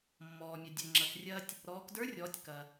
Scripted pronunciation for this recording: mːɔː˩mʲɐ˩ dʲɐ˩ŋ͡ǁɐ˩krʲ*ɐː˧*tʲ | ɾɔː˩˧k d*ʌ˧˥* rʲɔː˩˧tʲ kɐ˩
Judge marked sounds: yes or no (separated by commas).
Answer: yes, no